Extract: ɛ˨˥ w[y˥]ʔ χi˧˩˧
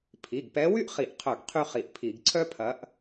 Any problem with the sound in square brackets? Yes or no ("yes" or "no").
no